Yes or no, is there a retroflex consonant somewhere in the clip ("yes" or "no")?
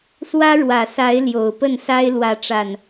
yes